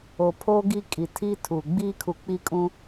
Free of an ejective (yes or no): no